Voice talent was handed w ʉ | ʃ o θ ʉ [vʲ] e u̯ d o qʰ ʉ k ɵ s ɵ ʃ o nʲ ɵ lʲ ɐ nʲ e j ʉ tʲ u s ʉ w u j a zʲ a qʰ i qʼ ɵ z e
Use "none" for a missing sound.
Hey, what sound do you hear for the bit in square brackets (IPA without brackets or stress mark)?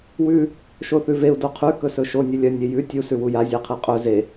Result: v